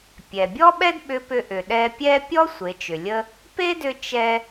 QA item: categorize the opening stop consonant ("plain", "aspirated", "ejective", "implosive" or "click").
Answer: plain